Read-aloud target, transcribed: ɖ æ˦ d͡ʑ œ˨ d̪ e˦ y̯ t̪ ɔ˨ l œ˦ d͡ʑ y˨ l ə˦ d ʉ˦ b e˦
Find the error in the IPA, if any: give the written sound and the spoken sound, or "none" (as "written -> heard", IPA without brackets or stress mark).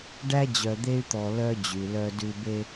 ə˦ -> œ˦